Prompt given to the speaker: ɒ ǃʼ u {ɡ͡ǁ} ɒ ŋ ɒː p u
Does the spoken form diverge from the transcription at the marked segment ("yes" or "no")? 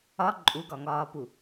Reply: yes